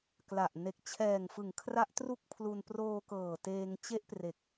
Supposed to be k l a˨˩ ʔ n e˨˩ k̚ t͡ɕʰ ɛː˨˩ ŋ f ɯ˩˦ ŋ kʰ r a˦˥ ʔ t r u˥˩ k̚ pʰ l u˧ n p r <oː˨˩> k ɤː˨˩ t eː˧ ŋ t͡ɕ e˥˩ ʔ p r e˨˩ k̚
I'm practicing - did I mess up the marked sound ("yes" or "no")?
yes